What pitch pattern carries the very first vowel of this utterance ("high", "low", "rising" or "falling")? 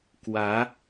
rising